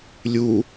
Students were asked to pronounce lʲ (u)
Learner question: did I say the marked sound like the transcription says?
yes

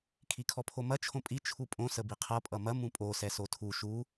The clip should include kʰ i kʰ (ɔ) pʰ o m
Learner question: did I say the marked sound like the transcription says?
yes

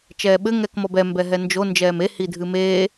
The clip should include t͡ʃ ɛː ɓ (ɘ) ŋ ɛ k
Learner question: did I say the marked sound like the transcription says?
yes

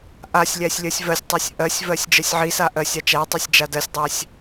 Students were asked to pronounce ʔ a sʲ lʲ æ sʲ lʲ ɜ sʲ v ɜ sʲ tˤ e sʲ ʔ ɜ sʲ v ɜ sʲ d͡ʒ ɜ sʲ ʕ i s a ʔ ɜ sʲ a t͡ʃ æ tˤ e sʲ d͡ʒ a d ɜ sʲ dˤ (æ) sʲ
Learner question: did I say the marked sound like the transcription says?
yes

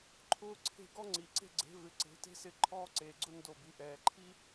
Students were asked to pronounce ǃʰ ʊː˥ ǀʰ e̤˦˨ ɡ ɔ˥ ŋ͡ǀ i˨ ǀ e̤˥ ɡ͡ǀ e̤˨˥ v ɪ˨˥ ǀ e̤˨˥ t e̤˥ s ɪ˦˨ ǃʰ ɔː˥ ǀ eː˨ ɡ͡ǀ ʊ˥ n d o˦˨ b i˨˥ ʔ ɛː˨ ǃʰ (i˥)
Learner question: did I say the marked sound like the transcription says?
yes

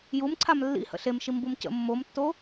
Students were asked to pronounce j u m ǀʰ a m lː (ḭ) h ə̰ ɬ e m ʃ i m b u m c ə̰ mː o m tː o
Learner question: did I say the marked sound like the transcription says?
yes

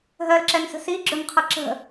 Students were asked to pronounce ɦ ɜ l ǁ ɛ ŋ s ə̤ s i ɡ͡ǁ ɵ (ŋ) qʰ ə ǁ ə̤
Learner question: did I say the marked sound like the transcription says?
yes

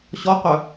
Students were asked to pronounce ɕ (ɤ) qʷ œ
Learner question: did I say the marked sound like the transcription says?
no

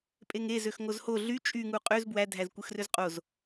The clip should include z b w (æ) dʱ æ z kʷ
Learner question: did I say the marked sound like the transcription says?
yes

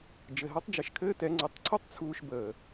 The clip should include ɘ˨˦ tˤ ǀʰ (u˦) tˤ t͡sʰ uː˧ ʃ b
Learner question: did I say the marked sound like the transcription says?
yes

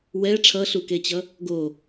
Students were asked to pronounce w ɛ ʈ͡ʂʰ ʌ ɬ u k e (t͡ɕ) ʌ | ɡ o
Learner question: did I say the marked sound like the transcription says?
yes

